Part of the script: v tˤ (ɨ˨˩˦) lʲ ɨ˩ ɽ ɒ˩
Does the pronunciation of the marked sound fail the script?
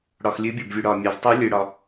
yes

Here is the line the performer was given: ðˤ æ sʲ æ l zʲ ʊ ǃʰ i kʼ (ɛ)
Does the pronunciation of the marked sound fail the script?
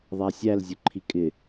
yes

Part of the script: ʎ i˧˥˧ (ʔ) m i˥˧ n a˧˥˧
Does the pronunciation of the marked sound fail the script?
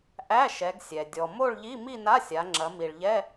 yes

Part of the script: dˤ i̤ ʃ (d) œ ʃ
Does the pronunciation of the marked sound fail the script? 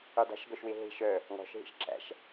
yes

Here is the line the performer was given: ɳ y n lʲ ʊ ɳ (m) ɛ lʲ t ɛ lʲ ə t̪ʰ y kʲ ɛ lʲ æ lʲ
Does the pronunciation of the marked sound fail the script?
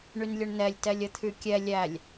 yes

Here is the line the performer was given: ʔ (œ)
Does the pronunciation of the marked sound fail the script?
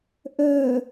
no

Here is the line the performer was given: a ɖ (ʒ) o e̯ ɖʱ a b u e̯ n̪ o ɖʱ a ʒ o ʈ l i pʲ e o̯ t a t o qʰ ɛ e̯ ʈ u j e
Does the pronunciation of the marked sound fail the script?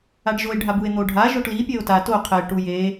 no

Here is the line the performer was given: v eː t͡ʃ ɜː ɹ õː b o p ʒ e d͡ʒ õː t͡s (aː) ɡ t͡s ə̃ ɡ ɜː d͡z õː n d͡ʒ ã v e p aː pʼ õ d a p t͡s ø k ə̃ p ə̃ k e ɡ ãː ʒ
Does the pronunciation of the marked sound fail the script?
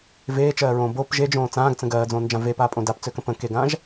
yes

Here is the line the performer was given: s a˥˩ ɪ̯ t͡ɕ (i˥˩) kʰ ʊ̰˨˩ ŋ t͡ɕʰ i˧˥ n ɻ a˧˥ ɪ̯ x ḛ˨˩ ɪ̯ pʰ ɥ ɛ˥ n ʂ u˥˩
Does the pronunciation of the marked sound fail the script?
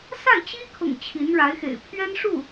yes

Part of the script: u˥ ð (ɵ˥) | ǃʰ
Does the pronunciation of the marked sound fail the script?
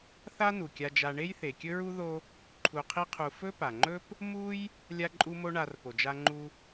yes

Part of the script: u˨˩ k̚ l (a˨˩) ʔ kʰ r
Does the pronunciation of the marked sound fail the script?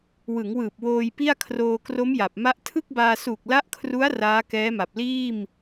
yes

